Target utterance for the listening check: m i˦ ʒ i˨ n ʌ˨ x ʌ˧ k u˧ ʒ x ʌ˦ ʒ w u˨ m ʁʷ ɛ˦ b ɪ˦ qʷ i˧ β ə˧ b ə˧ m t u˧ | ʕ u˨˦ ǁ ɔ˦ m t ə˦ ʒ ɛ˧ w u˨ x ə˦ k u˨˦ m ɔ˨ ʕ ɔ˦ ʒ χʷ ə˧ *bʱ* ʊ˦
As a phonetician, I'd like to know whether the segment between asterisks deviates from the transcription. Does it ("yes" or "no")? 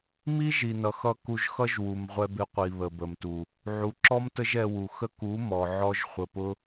yes